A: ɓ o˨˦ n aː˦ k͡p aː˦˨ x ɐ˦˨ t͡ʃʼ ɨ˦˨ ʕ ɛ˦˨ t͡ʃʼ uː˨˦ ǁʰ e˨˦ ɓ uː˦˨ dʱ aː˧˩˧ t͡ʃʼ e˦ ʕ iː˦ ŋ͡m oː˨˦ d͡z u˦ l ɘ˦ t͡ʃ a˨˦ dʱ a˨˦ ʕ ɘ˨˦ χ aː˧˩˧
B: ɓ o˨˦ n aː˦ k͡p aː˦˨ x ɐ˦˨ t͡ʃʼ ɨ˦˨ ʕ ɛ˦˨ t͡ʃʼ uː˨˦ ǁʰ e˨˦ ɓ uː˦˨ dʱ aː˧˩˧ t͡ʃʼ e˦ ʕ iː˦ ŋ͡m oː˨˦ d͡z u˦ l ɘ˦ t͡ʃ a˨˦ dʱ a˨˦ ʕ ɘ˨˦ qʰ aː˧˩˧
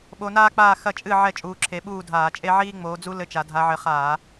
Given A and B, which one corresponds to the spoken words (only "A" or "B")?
A